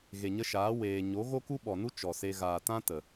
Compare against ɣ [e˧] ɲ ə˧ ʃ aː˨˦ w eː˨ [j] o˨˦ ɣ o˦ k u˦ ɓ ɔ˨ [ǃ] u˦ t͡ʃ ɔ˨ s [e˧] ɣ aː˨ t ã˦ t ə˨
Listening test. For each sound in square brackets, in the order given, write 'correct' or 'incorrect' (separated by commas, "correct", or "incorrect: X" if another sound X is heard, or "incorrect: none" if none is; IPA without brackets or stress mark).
incorrect: e˨, incorrect: ɲ, incorrect: n, correct